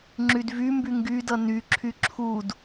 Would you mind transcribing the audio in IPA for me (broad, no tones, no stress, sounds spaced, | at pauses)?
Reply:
ŋ͡ǁ y d v y m b y ŋ ɡ y d ʌ n y ǁʰ y ǁʰ u d